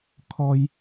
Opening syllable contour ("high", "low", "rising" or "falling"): high